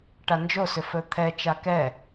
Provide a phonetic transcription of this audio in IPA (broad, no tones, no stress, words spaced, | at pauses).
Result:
ʈand͡ʒo sʏfɵt̪ʰɛ t͡ʃakɛ